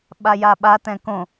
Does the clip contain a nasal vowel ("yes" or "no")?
yes